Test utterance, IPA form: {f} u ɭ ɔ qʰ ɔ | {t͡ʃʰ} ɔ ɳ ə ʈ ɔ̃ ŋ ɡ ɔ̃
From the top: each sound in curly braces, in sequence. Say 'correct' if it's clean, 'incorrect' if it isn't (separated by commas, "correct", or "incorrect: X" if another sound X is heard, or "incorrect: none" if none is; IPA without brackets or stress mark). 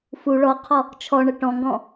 correct, correct